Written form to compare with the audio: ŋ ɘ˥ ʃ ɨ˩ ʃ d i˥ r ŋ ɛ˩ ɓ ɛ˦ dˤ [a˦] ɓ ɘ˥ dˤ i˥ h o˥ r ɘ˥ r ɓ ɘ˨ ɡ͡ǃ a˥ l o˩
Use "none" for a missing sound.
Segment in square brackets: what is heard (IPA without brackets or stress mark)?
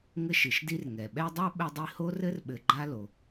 a˥